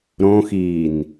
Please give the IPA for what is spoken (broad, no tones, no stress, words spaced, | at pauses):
ɾõxiːn